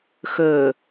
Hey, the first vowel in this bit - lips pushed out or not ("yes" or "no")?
yes